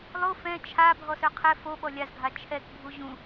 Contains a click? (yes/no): no